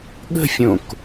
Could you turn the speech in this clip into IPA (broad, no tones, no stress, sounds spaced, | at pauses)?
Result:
ɠ ə̤ fʲ õ k